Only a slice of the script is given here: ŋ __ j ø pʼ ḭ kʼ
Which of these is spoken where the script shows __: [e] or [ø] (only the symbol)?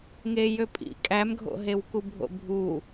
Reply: e